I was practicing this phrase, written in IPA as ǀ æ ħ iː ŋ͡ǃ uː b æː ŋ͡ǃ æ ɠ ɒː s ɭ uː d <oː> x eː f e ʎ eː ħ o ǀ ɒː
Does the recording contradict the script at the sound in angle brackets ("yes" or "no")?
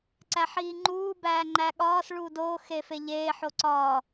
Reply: no